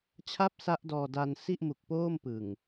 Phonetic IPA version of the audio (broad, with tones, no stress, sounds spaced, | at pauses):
t͡ɕʰ a˥˩ p̚ s a˦˥ ʔ d ɔː˧ d a˧ n s i˥˩ ʔ m u˨˩ k̚ p oː˥˩ m p ɯ˨˩ ŋ